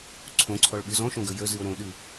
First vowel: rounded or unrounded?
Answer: rounded